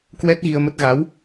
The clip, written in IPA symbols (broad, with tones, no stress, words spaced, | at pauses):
kwɛ˦˥t̚ɣi˧ə̯mə˦˥t̚ ɣa˨˦w